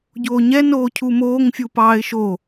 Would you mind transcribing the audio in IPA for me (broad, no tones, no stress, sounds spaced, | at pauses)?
ɟ oː ɲ ɛ n oː cʰ u m oː ŋ fʲ u p ɑː ɪ̯ ʃ o